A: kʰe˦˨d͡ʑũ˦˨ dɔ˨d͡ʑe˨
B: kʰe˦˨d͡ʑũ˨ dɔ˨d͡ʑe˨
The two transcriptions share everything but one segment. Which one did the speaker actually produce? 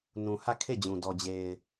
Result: B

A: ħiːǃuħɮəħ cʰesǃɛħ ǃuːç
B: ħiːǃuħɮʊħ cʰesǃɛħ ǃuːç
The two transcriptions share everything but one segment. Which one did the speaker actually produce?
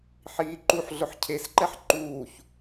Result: B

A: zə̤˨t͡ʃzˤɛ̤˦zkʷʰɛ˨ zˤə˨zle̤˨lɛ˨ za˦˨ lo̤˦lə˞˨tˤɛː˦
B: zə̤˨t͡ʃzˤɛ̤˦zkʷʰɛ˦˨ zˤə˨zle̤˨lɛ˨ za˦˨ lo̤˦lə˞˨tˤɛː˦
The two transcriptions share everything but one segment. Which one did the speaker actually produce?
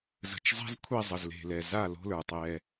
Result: B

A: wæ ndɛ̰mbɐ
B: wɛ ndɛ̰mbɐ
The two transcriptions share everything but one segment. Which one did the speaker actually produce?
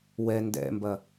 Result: B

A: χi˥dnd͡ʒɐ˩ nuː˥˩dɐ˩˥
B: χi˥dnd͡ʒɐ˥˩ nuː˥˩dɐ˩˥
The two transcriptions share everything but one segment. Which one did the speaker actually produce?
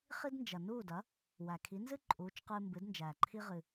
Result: A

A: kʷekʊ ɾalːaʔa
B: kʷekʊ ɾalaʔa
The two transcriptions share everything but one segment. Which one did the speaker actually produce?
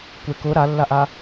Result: A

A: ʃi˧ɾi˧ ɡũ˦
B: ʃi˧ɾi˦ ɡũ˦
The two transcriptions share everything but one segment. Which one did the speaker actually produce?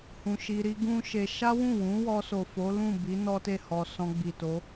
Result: B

